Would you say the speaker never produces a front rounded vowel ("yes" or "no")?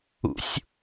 yes